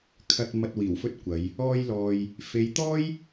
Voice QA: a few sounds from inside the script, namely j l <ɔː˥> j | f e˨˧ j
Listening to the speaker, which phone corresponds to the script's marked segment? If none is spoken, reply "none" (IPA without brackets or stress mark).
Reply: ɔː˨